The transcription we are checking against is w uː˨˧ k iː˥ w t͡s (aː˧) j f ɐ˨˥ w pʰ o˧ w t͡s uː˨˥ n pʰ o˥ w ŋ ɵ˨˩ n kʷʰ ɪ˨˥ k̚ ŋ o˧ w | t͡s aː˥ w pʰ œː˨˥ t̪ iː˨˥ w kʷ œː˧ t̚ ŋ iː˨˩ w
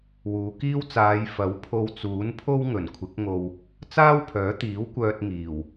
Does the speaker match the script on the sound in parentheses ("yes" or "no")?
no